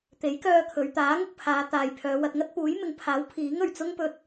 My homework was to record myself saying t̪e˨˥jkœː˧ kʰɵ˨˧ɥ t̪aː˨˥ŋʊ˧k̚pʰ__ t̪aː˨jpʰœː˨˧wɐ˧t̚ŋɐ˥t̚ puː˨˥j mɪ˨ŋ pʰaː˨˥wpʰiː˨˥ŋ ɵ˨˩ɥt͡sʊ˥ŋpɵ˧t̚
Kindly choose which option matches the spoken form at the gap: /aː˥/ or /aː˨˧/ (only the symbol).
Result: aː˨˧